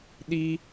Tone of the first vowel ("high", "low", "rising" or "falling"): high